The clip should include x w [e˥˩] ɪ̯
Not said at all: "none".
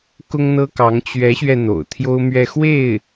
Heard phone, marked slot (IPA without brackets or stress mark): e˥˩